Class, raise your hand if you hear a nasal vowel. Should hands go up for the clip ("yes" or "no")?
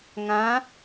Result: yes